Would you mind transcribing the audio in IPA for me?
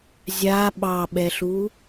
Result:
zʲa ɓɑɓɛɬu

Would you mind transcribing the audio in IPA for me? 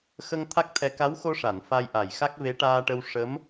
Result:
xə˧ŋ t̪ʰa˦˥k̚t̪ʰɛ˧ ka˧˥wxo˧ʂa˨˩˨n fa˧jʔa˨˩jxa˦˥k̚ ve˧˥ʈaː˧ʈə˧w ʂə˧˥m

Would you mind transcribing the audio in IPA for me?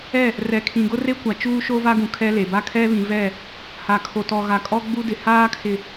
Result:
ɛ˦˨ | rɛ˨kʰĩ˨ ɡʊ˦re˦kʷa˨ t͡ʃuː˦ʃo˦va˦ɡũ˨ kʰɛ˦ le˨ ba˦kʰɛ˦ βĩ˨vɛ˦˨ | ha˨kʰo˨tɔ˨ɣa˨ kʼɔ˦ɡ͡bu˦dɪ˨ haː˦kʰɪ˨

